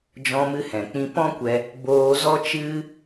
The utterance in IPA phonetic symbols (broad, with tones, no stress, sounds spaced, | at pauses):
d͡ʒ ɔ̃˧ m ɨ˧ h ɛ̃˨ k͡p ĩ˧ p ɔ̃˦ kʷ ɛ˧ | b oː˧ z ɔ˦ t͡ʃ ɨ˧